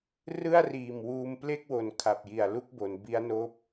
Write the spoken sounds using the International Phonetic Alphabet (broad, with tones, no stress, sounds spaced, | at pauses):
r ɯ˥˩ a̯ r iː˨˩ m w uː˧ m p l e˥˩ k̚ w o˨˩ n kʰ a˨˩ p̚ j i˨˩ a̯ l u˥˩ k̚ b o˩˦ n b i˦˥ a̯ n oː˦˥ p̚